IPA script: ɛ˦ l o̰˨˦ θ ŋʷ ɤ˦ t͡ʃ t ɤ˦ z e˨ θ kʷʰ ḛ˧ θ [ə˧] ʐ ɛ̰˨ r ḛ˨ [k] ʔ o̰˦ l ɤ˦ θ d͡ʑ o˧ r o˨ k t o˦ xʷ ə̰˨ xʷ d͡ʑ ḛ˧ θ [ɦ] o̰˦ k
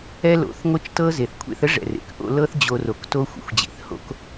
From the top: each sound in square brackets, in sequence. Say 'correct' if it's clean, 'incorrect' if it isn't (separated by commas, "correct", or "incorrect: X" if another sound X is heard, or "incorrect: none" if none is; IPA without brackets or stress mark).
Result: incorrect: ə˦, correct, incorrect: h